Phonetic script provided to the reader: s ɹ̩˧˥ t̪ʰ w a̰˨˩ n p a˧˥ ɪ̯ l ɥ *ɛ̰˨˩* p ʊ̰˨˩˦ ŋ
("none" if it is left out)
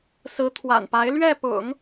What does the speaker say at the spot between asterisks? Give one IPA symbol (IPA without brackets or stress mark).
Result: ɛ˥˩